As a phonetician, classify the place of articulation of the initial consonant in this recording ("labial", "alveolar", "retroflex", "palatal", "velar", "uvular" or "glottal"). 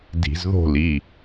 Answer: alveolar